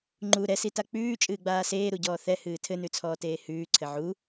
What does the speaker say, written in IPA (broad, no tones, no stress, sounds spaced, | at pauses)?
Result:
ŋ͡ǃ u ɾ ɛ s i t a k͡p ʉː t͡ʃʼ ɨː ɡ͡b aː s eː ɾ u ɟ ɔː θ ɛ h ɨː tʰ ɘ n ʉ t͡sʰ ɔː t eː h ʉː ǀʰ ɘ ʕ u